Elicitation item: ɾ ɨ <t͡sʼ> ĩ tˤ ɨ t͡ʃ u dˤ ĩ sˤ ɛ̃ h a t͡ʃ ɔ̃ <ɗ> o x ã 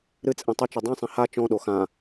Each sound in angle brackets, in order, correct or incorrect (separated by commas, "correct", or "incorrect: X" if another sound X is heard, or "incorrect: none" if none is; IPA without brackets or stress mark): correct, correct